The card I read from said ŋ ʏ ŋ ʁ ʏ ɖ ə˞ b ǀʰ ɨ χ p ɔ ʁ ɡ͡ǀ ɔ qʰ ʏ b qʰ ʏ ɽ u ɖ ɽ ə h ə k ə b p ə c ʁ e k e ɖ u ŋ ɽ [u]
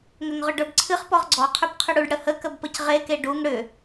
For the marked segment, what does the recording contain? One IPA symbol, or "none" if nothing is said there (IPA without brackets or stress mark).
ʏ